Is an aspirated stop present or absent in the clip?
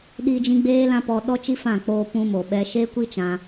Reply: absent